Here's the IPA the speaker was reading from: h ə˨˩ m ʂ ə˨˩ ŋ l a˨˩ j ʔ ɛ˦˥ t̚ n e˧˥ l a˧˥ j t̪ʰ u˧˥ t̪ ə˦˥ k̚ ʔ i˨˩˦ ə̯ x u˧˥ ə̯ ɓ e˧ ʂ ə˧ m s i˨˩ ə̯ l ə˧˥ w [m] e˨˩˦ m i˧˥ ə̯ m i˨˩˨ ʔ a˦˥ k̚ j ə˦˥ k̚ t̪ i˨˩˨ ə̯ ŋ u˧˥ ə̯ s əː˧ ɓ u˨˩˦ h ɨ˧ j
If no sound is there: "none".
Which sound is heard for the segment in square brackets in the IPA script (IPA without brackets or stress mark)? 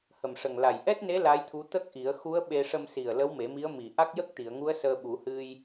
m